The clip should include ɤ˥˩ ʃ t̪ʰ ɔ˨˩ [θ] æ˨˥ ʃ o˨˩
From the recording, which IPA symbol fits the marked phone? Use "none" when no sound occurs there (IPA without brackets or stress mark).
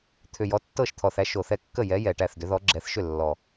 θ